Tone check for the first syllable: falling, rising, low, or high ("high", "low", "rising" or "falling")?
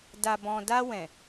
low